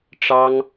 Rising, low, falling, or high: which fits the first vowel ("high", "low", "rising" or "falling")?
high